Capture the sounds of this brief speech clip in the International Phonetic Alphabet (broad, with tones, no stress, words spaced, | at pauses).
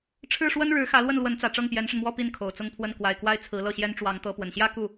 ʈ͡ʂʰɻ̩˥˩ʂwə˥nɻɻ̩˧˥xä˧˥ lwə˥˩nlwə˧˥nt͡sä˨˩ ʈ͡ʂɤ˥˩ŋpjɛ˧˥nʂə˧nmwɔ˥˧ pi˥˩nkʰo˨˩ʊ̯t͡sʊ˥˧ŋpʰwə˥˩n kwa˨˩ɪ̯kwa˥˩ɪ̯t͡sʰɹ̩˧˥ lɤ˥˩ɕjɛ˥n ʈ͡ʂwɑ˧˥ŋt̪ɤ˧˥ pwə˨˩nɕjä˥ ku˥˩